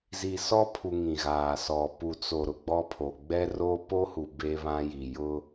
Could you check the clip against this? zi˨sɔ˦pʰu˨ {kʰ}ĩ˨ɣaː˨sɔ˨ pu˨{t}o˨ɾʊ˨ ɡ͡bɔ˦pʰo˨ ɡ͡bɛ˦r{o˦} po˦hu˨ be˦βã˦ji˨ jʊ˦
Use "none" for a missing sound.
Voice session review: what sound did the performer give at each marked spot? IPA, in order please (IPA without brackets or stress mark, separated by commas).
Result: ŋ, t͡s, o˦